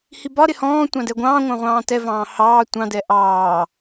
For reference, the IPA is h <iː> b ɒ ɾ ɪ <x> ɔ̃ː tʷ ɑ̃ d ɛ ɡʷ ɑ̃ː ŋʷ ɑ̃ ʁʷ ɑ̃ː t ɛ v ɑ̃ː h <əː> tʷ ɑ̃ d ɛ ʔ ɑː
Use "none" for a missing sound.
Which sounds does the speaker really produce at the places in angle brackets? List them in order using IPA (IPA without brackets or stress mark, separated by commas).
i, h, ɑː